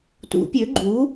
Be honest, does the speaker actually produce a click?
yes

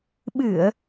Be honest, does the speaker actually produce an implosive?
yes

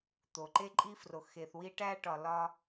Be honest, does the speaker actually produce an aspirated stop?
no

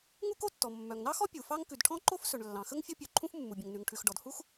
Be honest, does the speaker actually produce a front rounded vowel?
yes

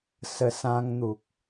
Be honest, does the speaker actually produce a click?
no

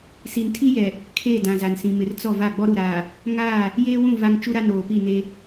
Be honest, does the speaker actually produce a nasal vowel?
yes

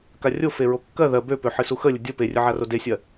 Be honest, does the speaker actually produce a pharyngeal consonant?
yes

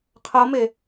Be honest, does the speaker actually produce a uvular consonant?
yes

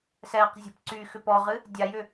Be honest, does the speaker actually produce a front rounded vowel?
yes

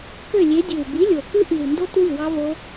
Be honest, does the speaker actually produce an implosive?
no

